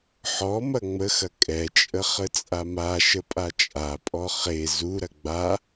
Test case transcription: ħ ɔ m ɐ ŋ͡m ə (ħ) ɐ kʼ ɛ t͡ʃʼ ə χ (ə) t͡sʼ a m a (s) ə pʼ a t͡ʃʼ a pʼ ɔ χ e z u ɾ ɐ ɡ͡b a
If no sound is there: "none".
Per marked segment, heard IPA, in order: x, ə, ʃ

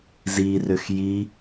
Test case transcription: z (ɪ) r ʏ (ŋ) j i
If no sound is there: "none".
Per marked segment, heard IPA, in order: i, x

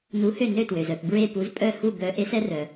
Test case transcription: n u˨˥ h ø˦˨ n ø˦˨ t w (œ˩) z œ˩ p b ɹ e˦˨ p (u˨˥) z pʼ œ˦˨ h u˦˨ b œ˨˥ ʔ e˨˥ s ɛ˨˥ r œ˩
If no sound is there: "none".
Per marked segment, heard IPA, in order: ø˩, u˨˥

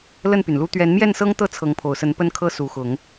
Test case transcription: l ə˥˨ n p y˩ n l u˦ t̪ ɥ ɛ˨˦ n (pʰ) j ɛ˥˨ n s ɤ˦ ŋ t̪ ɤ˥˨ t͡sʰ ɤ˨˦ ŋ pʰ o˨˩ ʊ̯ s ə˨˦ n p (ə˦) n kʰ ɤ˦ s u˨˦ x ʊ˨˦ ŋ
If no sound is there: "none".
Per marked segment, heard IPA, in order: m, ə˦

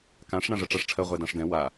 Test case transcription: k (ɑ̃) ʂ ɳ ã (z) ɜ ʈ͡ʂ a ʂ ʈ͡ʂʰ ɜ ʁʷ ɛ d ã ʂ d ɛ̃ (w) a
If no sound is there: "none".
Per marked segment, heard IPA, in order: ã, ʐ, w

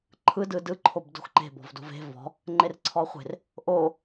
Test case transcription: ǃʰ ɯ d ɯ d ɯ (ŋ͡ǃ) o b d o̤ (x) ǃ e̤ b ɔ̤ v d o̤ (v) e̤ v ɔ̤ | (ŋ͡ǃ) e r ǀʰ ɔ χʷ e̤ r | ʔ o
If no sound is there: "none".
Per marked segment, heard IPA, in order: ǃʰ, x, v, ŋ͡ǃ

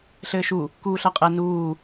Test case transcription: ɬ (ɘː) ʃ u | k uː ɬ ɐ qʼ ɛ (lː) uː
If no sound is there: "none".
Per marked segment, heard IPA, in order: ɘː, n

